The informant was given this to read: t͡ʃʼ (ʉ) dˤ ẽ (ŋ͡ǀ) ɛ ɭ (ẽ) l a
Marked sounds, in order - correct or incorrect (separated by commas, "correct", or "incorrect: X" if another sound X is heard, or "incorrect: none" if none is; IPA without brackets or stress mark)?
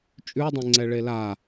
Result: correct, correct, incorrect: e